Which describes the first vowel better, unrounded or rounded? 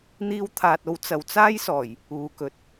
unrounded